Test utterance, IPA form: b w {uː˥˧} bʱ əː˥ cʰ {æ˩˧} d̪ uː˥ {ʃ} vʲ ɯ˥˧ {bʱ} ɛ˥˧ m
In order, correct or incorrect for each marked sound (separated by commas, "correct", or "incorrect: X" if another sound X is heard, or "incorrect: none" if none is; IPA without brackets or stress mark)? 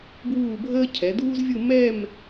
correct, incorrect: ɛ˩˧, incorrect: z, incorrect: m